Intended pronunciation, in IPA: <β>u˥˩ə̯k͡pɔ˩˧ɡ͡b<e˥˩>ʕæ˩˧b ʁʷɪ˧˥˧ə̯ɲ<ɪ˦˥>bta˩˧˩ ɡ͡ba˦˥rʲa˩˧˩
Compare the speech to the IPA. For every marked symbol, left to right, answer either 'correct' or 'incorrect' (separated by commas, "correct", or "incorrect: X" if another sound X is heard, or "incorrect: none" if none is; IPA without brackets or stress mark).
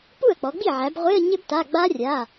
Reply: incorrect: p, incorrect: i˥˩, correct